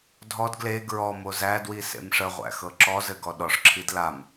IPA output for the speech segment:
dʱ ɔ d ɡ l e ɡ ɹ ɔ m o z æ d w i s ḛ m ʂ ə ʁʷ æ̰ x ɤ ǁ ɔ z ɘ ɡ ɔ ɗ ɔ ʂ ǁʰ i d l a m

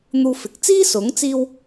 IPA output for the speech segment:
n̪ uː˧ f ɪ˨ k̚ t͡s iː˥ s ʊ˨˥ ŋ t͡s iː˧ w

